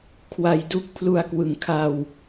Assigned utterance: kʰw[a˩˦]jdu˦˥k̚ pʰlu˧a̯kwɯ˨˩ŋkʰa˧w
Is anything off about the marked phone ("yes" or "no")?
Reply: yes